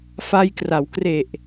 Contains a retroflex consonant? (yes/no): no